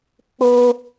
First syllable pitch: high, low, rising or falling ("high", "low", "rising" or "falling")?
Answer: high